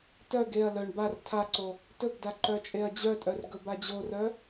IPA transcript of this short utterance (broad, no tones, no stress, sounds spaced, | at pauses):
t œ ɡ e ɐ̯ l œ ɳ b a r tʰ a ǀ o | t ɵ ɡ d a ǃ œ t͡ʃʼ e ɐ̯ d͡ʑ œ tʼ œ r ɡ ɵ b a d͡ʑ o r œ